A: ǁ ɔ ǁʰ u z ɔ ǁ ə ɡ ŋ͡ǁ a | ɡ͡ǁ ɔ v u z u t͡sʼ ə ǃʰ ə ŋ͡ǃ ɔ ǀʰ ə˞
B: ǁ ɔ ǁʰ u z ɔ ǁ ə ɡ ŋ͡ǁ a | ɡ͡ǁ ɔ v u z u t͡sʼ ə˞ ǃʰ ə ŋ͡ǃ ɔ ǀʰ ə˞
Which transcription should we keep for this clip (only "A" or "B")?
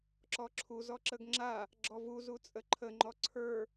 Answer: A